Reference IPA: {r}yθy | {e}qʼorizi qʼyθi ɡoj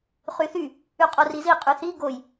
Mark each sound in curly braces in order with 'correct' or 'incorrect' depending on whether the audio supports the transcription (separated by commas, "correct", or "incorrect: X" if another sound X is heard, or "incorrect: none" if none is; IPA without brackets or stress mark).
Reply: incorrect: χ, incorrect: y